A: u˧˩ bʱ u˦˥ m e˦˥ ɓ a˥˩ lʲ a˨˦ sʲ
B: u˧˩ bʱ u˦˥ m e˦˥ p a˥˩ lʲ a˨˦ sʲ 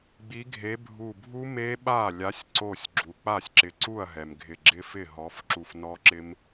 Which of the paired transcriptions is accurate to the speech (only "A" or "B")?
A